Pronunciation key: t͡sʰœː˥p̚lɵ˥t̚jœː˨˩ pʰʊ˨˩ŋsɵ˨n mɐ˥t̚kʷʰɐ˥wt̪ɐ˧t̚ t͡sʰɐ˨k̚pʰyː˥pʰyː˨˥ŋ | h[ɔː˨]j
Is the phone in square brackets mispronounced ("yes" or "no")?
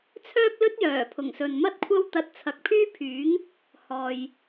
no